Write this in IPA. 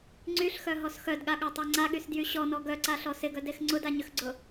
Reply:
ŋ͡ǀyɬxœɦɔs xœdɠaɠatˤa ŋ͡ǀaɠysdjy ɕɔnɔ ɡœǀaɬɔ sɪɡœdex ŋ͡ǀʊdaɲʏxɡ͡ǀʊ

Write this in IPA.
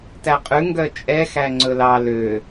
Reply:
tæqʼʉ ŋɡœt͡ʃʼɛ xæŋ͡ǀɵlɑ lø

